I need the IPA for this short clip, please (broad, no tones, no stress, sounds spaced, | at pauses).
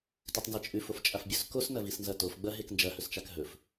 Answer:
t ʉ tˤ n z e t͡ʃʼ ʉ f o f t͡ʃʼ a f bʲ ɵ s k o s n ɐ v i s n z ɐ t o f ɡ͡b ɐ ɦ e k n d͡ʒ ɐ h ɵ s t͡ʃ a k ɦ ɵ f